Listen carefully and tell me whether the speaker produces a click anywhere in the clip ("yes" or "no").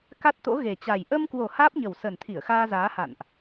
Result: no